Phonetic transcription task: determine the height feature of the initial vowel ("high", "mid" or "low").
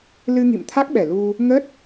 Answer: high